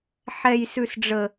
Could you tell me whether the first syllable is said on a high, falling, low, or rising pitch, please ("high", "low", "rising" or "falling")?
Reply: high